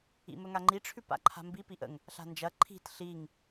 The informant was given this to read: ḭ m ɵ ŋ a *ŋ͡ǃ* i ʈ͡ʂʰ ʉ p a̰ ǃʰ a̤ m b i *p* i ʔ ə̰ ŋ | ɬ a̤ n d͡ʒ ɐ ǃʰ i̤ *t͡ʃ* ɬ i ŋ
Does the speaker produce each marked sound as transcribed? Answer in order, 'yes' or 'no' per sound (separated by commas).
yes, yes, no